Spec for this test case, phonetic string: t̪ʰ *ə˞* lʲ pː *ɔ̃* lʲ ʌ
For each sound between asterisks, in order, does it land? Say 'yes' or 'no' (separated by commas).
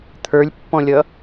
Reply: yes, yes